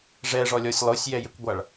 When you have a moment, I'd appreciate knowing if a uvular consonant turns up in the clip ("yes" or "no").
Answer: no